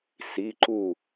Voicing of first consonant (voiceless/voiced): voiceless